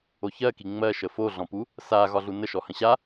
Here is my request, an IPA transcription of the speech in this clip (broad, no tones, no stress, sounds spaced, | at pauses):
o ç ɜ k i ŋ͡m ɜ ʃ ə f o ɮ ɔ̃ p u | s a ɣ ɒ ɮ u n ə ʃ ɔ h ə̃ ɕ a